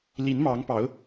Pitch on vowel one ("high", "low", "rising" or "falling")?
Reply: rising